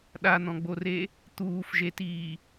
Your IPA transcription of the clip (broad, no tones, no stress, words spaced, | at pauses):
ɗan̪ɔ̃ɡ͡bore | t̪uːfʒetiː